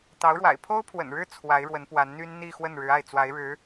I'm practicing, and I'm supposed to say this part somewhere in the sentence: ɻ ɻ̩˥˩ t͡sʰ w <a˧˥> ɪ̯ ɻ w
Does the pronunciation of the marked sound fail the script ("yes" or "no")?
no